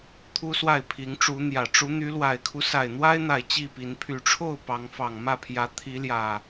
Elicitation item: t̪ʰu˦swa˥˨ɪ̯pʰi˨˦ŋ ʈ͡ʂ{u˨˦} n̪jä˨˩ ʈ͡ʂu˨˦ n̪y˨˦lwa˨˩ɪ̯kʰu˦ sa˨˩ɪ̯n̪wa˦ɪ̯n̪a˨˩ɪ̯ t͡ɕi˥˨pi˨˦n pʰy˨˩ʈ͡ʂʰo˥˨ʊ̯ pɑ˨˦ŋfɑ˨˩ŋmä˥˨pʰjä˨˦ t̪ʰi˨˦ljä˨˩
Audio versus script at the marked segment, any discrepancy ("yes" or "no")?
no